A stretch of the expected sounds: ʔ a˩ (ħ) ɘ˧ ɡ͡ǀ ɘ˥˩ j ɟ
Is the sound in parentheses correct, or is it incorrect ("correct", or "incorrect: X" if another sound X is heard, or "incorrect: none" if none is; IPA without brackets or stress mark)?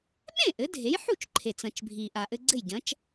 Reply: incorrect: ʔ